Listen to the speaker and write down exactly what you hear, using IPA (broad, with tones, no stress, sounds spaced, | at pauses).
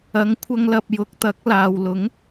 ɐ˨˥ ŋ kʷʰ ɐ˥ ŋ l ɐ˧ p̚ j ʊ˧ k̚ t̪ ɐ˨˥ k̚ l aː˨ w l ʊ˨˥ ŋ